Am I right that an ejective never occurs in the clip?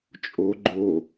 no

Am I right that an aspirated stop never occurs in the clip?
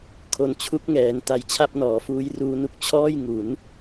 no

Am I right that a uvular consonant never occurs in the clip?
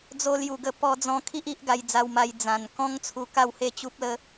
yes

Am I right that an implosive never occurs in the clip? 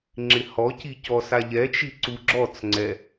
yes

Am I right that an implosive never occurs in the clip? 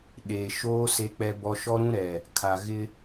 no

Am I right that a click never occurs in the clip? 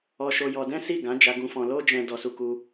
yes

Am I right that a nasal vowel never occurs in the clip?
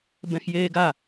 no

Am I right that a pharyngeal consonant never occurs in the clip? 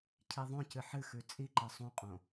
no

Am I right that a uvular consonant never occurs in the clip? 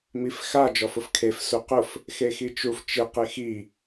no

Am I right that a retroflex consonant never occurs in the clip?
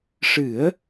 no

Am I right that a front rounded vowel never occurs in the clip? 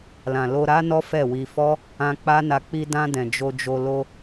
yes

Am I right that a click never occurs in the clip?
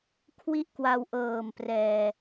yes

